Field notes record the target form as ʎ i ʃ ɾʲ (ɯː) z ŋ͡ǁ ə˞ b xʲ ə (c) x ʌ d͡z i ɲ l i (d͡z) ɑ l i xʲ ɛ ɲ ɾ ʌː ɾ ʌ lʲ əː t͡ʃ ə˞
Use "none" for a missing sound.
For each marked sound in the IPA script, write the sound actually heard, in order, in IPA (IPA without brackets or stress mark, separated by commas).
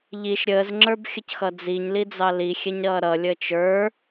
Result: əː, c, d͡z